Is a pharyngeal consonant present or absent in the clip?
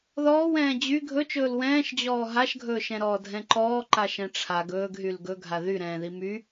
absent